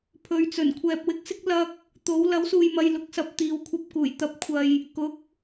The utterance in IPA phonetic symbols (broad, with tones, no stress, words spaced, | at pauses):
pʰɵ˨˧ɥt͡sɵ˨˩n kʷʰɛː˨p̚wɪ˧k̚sɪ˥k̚ lɐ˧k̚ | t̪o˨˥w lɐ˨˥wsuː˨jmɐ˨j lʊ˨˥k̚sɐ˨p̚ t̪iː˨wkʷʰɐ˧p̚kuː˨˩j t̪ɐ˨˥p̚kʷʰɐ˨j | kʊ˨˥k̚